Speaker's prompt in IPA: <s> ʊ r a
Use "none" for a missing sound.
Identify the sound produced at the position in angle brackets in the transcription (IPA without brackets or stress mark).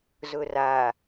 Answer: z